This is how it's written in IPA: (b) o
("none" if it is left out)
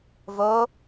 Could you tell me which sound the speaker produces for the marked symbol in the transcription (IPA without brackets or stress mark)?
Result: v